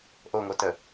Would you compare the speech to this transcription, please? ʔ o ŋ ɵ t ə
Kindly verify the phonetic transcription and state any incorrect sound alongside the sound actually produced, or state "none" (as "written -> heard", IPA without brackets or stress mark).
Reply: ɵ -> o